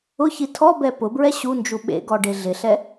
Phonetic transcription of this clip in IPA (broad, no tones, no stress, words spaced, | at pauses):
ʊçi tʰɔbɛ pʊbɹɛ ɕund͡ʒu ɓḛɡɔ ɖeɮɪɬɛ